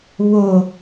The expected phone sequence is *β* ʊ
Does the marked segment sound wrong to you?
no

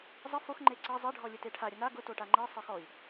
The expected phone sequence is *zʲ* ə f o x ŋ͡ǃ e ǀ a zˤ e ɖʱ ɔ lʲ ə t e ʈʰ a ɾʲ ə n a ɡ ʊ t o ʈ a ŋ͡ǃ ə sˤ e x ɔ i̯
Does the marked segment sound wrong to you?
yes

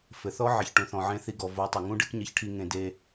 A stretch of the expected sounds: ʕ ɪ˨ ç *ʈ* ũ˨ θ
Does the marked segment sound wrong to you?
no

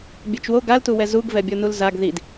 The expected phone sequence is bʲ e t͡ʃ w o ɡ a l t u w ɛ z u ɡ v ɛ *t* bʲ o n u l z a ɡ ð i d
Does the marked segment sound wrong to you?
yes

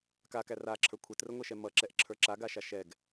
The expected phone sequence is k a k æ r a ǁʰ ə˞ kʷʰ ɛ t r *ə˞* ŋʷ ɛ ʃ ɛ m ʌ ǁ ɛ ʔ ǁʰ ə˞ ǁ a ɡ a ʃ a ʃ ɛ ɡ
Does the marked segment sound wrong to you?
yes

